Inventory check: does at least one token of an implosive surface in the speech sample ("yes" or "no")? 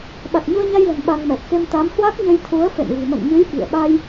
yes